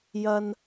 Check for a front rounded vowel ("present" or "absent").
absent